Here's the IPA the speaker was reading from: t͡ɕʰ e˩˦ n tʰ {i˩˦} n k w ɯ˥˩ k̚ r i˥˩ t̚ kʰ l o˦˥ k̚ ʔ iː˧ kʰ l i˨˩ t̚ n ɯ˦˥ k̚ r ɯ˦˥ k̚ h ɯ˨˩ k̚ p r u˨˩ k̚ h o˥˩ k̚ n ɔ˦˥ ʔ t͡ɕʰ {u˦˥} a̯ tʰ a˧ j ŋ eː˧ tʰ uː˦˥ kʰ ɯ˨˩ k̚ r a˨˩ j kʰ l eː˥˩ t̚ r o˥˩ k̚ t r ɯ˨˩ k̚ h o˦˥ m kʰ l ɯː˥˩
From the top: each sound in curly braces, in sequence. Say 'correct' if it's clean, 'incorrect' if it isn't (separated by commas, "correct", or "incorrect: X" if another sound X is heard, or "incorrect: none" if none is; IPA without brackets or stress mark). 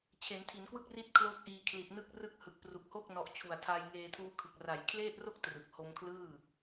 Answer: correct, incorrect: u˨˩